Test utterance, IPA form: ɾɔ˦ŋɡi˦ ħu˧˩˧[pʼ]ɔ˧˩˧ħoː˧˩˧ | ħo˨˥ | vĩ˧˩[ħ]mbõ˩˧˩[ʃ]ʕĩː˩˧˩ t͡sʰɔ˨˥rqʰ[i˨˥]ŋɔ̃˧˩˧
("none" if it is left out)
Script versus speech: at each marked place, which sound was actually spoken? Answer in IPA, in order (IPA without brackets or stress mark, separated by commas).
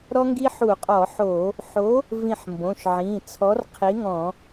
qʼ, ħ, ʃ, i˨˥